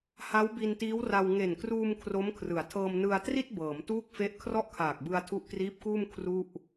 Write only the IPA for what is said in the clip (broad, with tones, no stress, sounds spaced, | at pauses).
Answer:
h a˦˥ w b i˧ n t iː˦˥ w r a˧ w ŋ e˨˩ n k r uː˧ m kʰ r o˦˥ m kʰ r ɯ˩˦ a̯ tʰ ɤː˧ m n ɯ˧ a̯ t r i˥˩ t̚ b ɤː˩˦ m t uː˥˩ k̚ f e˦˥ ʔ kʰ r ɔ˥˩ ʔ kʰ aː˨˩ k̚ b ɯ˧ a̯ tʰ u˦˥ ʔ k r iː˦˥ p̚ k uː˥˩ m kʰ r u˥˩ ʔ